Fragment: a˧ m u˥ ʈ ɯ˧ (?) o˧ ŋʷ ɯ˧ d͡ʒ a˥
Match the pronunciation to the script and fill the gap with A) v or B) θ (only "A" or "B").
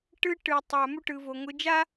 A